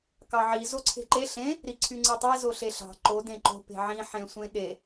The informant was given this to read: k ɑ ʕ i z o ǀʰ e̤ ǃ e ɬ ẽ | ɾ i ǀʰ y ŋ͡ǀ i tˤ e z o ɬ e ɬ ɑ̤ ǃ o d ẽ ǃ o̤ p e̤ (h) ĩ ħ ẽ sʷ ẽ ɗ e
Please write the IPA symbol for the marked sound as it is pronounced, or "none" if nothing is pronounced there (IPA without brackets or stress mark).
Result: ʕ